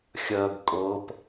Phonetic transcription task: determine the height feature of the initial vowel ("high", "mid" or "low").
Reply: mid